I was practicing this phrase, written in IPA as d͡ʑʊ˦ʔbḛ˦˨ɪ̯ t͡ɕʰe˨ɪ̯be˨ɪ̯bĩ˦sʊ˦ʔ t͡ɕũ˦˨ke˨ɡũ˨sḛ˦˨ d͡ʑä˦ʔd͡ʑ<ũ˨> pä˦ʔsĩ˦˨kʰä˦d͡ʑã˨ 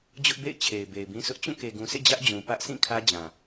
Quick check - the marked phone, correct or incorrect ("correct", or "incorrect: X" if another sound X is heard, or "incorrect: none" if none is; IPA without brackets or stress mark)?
correct